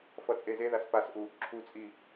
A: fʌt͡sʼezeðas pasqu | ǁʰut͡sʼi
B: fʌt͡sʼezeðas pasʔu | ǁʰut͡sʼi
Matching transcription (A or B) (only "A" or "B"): B